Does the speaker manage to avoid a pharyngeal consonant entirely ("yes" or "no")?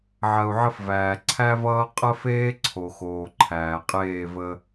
no